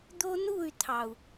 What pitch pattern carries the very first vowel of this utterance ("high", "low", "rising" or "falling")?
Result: high